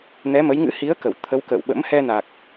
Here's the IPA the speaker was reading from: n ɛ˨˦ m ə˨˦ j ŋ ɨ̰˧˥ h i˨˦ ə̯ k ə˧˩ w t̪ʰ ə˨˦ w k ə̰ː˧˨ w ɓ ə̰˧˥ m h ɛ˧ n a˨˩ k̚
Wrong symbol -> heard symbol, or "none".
none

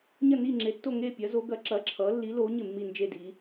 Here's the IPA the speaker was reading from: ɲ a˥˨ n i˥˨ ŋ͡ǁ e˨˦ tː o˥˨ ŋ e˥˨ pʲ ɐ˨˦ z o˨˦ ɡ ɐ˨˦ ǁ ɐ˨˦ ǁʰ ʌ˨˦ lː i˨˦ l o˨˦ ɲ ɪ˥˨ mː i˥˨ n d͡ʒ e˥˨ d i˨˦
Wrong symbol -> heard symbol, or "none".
a˥˨ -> ɐ˥˨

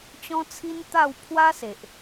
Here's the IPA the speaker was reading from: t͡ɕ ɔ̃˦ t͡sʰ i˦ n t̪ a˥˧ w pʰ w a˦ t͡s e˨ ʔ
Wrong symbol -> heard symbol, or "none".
t͡s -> s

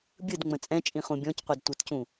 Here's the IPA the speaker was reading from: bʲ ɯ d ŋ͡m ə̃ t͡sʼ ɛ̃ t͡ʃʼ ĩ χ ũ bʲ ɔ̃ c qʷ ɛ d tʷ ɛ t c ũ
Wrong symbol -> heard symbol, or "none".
none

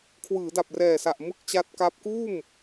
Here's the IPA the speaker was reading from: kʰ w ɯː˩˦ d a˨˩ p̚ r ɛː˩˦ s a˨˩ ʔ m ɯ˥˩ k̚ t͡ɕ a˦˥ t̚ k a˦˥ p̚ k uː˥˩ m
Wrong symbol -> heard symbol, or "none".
ɛː˩˦ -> ɛː˨˩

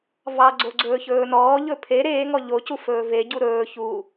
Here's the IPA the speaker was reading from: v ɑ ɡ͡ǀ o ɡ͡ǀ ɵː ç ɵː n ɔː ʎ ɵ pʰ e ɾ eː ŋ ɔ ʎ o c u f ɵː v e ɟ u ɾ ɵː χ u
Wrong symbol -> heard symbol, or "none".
χ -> ç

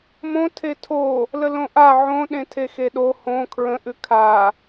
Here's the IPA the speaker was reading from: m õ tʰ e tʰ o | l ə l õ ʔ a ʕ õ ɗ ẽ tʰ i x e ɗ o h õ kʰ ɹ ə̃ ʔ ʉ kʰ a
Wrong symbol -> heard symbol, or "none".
i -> e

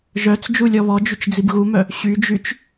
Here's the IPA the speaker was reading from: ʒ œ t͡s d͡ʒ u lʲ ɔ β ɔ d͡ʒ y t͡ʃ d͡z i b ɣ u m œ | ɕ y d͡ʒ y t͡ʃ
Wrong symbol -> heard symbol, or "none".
none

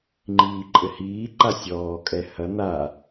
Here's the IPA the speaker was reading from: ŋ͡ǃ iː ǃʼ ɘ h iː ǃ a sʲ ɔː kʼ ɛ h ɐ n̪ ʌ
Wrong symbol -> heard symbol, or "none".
ʌ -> a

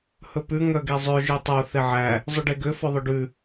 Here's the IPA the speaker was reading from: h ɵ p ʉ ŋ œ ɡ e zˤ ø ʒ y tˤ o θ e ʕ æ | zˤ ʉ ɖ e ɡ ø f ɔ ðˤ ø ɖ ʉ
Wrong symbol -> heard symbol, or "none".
none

